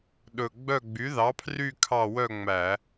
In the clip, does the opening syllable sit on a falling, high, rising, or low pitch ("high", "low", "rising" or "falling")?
low